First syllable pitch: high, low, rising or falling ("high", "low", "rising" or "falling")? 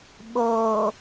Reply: low